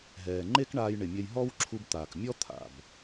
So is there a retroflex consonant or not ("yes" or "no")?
yes